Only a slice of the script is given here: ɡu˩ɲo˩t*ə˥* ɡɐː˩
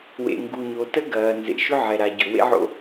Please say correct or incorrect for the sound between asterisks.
correct